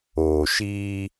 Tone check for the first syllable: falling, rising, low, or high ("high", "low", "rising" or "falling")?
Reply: low